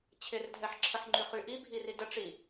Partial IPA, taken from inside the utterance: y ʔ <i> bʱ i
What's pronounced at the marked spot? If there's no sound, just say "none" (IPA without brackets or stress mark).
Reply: i